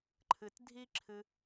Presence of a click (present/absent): present